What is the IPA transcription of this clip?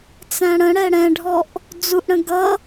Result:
t͡s æ̃ ɽ ə̃ ɽ ɛ ɽ ɛ̃ ɖʱ ɔ ʔ | d͡z u ʔ ɽ ə̃ ɡ ʌ

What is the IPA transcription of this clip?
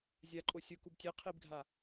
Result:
zʲ a ǃʼ o sʲ ʊ k u b tʲ e qʰ i b ɡʱ a

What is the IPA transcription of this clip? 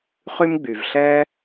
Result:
χ y˥ m ɡ͡b y˩ v ɬ ɛ˥

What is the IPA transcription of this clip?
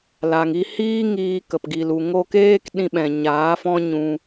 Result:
l a˨ ŋ i˧ h iː˦ ŋ iː˧ k ə˨ p ɡ i˨ l u˨ ŋ o˧ k eː˦ k ɗ ĩ˧ ɓ ɛ̃˨ ɲ aː˨˦ f ɔ̃˦ ɲ ũ˧

